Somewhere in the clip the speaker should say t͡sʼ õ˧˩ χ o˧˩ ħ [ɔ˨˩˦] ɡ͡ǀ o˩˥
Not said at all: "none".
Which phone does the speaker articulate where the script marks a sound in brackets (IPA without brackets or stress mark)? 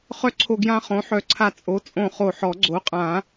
ɔ˨˩˦